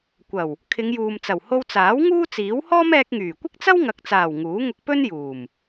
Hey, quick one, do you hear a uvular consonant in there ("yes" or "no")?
no